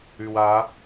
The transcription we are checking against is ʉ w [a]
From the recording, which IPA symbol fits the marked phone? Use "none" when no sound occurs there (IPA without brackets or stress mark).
a